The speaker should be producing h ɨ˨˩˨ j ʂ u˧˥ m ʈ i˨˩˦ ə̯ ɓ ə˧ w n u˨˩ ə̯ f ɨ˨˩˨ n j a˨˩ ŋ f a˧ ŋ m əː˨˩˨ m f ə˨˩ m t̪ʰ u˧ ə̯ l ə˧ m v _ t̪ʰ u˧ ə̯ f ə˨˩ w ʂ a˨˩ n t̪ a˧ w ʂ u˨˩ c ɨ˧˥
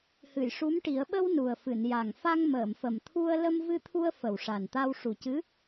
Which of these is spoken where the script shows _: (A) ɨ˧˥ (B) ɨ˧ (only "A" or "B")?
B